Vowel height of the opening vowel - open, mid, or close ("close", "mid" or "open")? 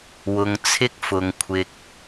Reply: close